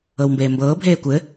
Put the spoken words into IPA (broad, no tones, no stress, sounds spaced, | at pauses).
ɤ w m b eː m b ɤː bʱ eː kʷ ɘ